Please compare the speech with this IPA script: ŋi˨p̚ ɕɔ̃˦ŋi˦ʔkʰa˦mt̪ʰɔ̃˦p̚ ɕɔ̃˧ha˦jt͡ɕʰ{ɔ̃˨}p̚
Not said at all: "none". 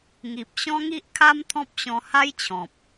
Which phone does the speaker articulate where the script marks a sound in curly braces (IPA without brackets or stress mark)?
ɔ̃˨